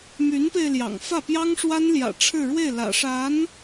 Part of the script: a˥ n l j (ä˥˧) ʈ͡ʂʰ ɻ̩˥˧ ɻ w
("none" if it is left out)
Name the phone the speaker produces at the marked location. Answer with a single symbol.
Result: ä̰˨˩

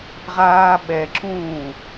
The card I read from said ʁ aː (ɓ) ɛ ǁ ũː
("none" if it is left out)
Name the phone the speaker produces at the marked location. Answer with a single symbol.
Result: ɓ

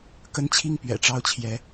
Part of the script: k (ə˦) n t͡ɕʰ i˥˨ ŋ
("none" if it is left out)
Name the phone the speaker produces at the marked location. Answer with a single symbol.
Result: ə˦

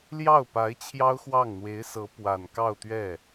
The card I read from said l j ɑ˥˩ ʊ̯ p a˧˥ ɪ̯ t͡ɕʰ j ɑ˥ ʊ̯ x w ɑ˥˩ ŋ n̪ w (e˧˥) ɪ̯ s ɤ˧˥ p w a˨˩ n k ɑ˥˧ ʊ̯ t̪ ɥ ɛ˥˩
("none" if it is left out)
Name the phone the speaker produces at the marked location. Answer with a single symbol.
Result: e˧˥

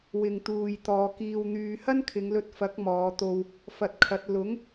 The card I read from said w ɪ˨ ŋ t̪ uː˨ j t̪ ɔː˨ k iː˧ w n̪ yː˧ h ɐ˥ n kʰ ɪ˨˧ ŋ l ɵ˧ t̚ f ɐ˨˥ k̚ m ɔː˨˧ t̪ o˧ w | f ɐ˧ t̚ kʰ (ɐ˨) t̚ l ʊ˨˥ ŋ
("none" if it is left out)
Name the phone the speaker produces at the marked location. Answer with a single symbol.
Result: ɐ˨˥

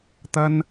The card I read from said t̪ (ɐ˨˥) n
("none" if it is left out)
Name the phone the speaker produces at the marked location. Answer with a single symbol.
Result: ɐ˥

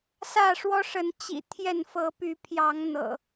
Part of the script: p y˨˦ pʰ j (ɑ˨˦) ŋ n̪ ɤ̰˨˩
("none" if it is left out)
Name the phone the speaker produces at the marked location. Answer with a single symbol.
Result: ɑ˨˦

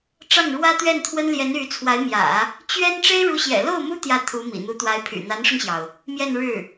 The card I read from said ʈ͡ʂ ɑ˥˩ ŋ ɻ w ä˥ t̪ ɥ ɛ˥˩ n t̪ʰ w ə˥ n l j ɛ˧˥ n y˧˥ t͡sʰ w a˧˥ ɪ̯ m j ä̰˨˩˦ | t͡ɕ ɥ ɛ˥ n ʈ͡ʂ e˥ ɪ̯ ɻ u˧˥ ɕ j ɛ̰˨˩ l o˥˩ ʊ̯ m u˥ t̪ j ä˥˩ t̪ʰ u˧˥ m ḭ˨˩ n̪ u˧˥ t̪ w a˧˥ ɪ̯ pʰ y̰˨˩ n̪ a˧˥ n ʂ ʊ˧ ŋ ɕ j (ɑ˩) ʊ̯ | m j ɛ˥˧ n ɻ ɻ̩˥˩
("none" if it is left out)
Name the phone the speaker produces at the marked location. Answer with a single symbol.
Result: ɑ˩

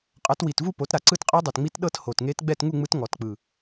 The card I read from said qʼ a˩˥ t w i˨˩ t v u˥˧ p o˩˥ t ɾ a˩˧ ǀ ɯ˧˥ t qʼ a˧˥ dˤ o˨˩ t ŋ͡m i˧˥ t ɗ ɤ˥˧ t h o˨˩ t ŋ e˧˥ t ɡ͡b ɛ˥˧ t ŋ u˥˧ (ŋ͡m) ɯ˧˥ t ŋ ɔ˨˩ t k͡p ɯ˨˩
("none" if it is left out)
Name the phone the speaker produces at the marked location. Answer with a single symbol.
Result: ŋ͡m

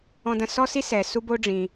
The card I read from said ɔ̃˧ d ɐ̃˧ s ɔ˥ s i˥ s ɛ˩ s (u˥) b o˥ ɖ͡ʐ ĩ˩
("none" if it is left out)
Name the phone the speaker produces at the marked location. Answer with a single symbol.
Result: u˥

